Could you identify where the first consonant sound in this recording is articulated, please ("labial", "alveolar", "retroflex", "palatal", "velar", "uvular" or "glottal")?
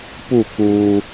labial